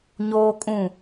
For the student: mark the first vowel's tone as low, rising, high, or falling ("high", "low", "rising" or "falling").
high